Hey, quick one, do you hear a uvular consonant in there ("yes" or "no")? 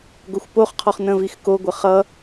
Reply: yes